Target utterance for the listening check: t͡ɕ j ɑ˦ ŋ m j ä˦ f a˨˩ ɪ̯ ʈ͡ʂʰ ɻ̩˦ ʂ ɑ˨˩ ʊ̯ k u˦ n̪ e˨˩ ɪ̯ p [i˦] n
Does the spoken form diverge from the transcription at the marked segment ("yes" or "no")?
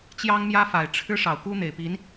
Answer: yes